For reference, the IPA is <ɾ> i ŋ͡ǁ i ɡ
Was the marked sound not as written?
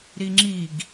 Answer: no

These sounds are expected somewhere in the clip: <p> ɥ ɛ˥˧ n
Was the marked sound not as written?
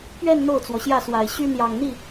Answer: no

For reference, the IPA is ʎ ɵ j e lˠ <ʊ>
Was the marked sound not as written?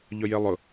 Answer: no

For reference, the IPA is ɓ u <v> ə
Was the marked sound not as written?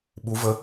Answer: no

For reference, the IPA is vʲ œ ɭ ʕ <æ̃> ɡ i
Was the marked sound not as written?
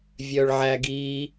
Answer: yes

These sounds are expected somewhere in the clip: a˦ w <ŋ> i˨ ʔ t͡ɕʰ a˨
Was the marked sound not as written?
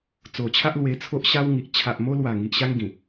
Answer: no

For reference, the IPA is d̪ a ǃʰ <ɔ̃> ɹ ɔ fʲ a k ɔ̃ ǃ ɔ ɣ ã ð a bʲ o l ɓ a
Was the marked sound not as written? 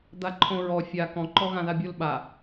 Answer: yes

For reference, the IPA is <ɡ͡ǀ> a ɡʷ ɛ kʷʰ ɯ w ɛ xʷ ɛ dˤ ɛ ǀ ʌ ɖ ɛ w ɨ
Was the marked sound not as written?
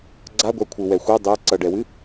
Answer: no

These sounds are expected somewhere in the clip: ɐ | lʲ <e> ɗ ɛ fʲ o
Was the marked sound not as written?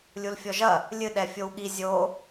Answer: yes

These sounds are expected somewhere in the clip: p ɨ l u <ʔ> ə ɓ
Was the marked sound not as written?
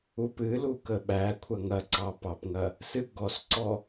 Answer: yes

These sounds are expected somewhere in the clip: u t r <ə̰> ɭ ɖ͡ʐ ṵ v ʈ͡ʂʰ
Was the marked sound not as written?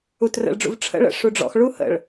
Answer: no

